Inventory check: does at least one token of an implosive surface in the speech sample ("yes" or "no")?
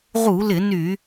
no